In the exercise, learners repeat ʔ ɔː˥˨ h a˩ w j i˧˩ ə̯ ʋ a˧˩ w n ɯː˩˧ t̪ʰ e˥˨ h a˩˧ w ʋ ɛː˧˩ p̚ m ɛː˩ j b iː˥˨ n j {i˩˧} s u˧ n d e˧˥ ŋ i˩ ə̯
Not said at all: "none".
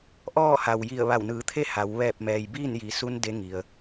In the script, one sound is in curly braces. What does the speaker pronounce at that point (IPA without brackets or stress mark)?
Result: i˩˧